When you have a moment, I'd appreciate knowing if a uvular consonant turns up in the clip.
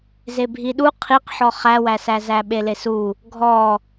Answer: yes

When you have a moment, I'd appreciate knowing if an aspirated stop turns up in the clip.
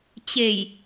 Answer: no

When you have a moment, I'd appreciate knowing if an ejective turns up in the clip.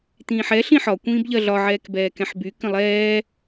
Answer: no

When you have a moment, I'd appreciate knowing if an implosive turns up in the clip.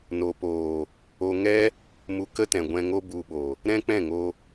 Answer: yes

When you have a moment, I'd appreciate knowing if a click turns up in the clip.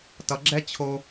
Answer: yes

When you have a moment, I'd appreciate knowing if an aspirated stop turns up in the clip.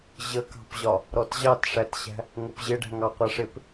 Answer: no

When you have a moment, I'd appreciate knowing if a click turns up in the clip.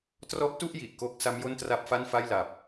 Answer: no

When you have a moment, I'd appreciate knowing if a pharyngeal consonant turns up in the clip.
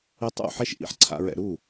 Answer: yes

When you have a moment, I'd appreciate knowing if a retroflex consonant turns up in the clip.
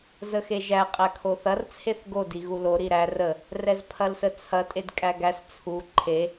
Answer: no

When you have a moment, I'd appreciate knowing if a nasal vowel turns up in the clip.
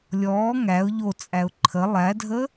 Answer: no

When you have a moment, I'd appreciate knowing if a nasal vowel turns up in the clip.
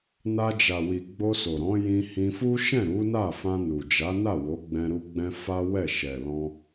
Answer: yes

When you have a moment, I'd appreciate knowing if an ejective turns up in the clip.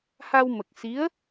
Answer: no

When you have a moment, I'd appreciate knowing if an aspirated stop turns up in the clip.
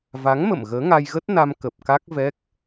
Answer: no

